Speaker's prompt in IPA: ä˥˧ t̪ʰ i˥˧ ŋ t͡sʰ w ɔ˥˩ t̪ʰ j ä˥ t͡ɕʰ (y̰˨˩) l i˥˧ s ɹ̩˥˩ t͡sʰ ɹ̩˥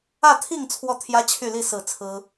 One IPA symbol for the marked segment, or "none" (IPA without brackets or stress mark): y˥˧